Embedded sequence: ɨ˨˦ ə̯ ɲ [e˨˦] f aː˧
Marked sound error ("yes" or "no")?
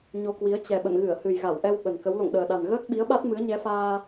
yes